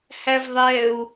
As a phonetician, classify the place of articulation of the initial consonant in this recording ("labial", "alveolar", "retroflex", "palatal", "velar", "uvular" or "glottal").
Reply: glottal